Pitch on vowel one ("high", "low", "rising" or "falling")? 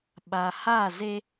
low